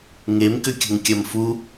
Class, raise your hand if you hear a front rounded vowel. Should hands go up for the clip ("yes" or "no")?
yes